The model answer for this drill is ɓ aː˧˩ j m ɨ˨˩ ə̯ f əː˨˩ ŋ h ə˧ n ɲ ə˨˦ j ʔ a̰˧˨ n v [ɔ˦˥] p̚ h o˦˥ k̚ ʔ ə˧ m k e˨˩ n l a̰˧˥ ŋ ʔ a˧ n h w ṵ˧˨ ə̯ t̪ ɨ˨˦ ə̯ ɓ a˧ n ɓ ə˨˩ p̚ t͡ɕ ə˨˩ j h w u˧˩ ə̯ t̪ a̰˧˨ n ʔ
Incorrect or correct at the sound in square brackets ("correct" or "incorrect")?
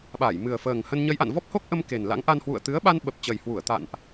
correct